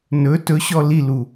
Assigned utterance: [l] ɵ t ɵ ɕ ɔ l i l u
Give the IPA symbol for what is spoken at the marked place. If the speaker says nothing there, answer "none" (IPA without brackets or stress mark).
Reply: n